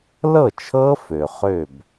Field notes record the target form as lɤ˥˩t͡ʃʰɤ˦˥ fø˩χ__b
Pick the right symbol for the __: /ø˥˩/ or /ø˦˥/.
ø˥˩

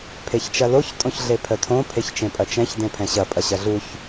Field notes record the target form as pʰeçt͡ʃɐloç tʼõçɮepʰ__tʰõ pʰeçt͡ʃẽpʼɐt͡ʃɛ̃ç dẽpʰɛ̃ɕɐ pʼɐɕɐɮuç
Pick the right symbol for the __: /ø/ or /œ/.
œ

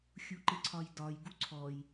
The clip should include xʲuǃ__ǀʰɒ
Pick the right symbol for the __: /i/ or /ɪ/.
ɪ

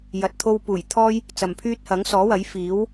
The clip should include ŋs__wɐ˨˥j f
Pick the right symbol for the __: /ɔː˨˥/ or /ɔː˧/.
ɔː˨˥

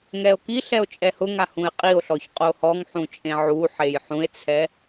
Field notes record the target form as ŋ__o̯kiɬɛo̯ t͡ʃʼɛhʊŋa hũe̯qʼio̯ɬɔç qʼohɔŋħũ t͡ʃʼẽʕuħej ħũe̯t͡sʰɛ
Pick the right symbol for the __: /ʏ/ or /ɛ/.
ɛ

